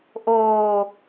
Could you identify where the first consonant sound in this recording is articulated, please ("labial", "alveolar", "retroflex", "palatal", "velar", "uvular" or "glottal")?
glottal